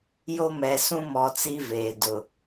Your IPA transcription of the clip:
j o˦ m ɛ˨ s ũ˦ m ɔ˨ t͡s i˦ v eː˨ d ʊ˨

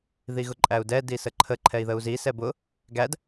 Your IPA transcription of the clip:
ð i ɣ ʊ ǃʼ æ u̯ d ɛ d i s ə ǃʰ ə ǃʰ ɛ i̯ ð ə u̯ z i s ɛ b ʊ | ɡ æ d

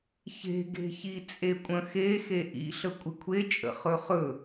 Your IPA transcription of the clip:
ç e̤ ɡ e̤ ç i t͡sʼ e kʷʼ ə̃ x e x e ʔ ḭ ɬ ə kʷʼ ɪ kʷʰ e t͡ʃʼ ə̰ χ ɵ χ ɵ

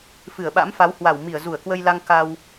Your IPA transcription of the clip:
f ɨ˧˩ ə̯ ɓ a̰˧˥ m f a˨˦ w h w a˧˩ w m i˧˩ ə̯ z u˧˩ ə̯ k w ə˧ j l a˧ ŋ k a˧ w

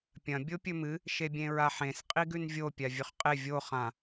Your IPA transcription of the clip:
pʲ ɐ̃ bʲ o pʲ ɵ m ɨ | ʃ e bʲ ẽ ɹ a ħ ẽ s qʼ i ɡ ʉ n vʲ o pʲ a vʲ ɵ χ qʼ e vʲ o χ ã

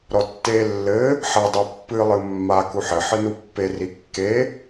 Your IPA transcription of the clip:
ɾ ɔ tː e lː ɘ | ħ ɐ dˤ ɛ pː ɨ lˠ ɨ mː a k u ħ ɘ ħ ɨ n u pː e r i kː e

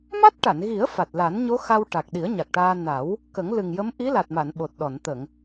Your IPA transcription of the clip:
m a˦˥ t̚ ʈ a˨˩˨ n ɣ i˨˩˦ ə̯ f a˨˩ t̚ l a˨˩˦ n ɲ o˧˥ x a˧ w ʈ a˨˩ k̚ ɗ i˨˩˦ ə̯ ɲ a˨˩ k̚ ʈ aː˧ n a˨˩˦ w | k ə˨˩˦ ŋ l ɨ˨˩ ŋ j ə˧˥ m ʔ i˧˥ l a˨˩ t̚ m a˨˩˨ n ɓ o˨˩ t̚ ɗ ɔ˨˩˨ n t̪ ə˨˩˨ ŋ

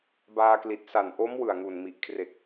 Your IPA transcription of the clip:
b aː˧ k l i˨˩ t̚ s a˨˩ n ʔ o˦˥ m w ɯ˨˩ a̯ ŋ u˨˩ n m i˨˩ ʔ kʰ r e˨˩ k̚

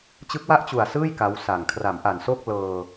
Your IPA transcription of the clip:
t͡ɕ ɯ˦˥ k̚ w a˥˩ ʔ t͡ɕ u˨˩ a̯ s ɯː˥˩ j k a˦˥ w s a˨˩ ŋ kʰ r a˩˦ m ʔ a˨˩ n s o˥˩ k̚ l ɤː˧

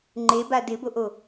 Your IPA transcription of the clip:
ŋ͡ǃ e b a d ɪ b o ʔ o

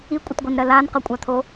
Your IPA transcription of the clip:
i kʷʼ ʌ t ɡʷ i n ɾ ɜ l a n q ʌ kʷʼ a t̪ʰ o

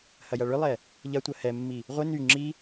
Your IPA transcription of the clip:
h ɐ j ɐ ɭ ʏ lˠ ɛ | ʎ ɐ tʷ ɐ h ɛ mː i | ʁʷ ɪ n y ŋ͡ǁ i

